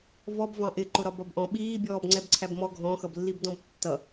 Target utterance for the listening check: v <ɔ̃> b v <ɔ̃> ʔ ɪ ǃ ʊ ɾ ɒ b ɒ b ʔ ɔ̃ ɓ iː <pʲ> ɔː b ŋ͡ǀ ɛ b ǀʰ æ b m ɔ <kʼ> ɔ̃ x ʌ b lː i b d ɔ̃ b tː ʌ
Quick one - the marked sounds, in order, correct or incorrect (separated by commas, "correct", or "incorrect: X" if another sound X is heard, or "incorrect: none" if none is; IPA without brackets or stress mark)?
incorrect: ɔ, incorrect: ɑ̃, incorrect: bʲ, incorrect: ɡʱ